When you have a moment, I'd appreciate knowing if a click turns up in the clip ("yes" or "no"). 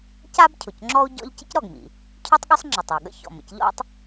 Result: yes